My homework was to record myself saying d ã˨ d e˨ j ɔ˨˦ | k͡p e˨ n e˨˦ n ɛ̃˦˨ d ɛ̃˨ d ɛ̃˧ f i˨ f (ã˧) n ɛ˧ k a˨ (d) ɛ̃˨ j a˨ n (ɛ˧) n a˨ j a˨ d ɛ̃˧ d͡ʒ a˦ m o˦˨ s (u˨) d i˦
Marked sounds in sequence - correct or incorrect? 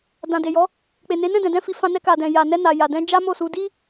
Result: correct, correct, correct, incorrect: u˧

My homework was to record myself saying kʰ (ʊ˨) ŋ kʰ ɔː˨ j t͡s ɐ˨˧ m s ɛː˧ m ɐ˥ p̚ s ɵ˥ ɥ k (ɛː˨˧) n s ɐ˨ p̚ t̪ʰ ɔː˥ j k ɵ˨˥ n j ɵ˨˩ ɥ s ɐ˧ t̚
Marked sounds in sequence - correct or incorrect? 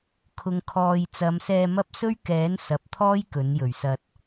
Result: correct, incorrect: ɛː˨˥

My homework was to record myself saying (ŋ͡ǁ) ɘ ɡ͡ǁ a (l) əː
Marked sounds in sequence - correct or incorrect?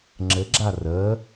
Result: correct, incorrect: r

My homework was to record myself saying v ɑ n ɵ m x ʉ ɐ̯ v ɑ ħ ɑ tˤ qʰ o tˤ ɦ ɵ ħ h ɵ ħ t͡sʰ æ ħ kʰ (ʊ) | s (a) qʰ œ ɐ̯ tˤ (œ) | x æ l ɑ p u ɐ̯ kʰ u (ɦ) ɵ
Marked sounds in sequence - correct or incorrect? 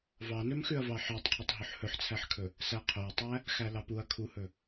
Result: incorrect: ɵ, incorrect: æ, incorrect: æ, incorrect: h

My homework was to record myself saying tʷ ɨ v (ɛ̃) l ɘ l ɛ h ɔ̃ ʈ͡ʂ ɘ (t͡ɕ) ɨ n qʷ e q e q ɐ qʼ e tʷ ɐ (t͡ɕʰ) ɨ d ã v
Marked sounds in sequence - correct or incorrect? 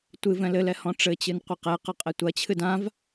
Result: correct, correct, correct

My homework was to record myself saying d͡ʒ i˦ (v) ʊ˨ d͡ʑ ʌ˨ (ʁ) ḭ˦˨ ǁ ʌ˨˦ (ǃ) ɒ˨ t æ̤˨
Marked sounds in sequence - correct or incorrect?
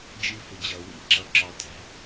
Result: incorrect: f, incorrect: w, incorrect: ǁ

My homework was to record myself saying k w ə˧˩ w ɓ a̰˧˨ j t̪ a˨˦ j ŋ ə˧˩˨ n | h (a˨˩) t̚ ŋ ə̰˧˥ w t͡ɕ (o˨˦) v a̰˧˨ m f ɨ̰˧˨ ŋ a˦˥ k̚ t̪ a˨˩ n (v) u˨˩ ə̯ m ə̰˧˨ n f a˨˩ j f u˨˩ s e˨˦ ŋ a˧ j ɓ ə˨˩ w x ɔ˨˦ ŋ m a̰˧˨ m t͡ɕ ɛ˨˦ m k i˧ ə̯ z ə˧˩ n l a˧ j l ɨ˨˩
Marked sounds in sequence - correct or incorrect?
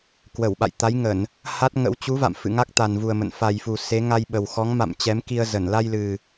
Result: incorrect: a˦˥, incorrect: u˨˦, correct

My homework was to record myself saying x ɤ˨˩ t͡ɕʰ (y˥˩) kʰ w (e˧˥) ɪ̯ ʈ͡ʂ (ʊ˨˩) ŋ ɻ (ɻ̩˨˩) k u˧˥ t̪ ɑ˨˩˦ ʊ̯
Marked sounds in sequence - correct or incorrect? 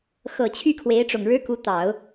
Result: correct, correct, correct, incorrect: ɻ̩˥

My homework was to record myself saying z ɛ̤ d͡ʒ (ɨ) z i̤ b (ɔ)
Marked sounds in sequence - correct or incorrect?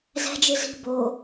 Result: correct, incorrect: o

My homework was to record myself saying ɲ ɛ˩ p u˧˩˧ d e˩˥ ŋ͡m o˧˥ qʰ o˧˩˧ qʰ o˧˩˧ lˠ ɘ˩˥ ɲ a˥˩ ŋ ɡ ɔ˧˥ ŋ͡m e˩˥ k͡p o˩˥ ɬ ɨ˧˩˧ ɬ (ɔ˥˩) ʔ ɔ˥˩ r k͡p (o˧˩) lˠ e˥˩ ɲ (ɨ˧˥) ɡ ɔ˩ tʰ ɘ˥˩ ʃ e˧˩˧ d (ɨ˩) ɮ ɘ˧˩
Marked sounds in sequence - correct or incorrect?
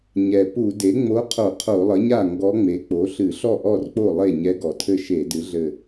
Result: correct, incorrect: o˥˩, incorrect: ɛ˧˥, incorrect: ɨ˩˥

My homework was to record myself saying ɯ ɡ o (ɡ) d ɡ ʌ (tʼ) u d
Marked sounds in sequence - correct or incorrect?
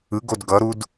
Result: incorrect: none, incorrect: ɾ

